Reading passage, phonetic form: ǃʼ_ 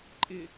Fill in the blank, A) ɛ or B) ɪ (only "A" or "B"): B